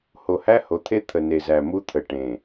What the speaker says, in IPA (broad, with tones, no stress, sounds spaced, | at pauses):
h o˨ h æ˦ h o˨ t̪ʰ e˦ t̪ʰ ə˨ n e˨ z æ˨ m u˦ t̪ʰ ə˨ ʈ ẽ˨